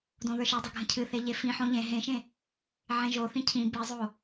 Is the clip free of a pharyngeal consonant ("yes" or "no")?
no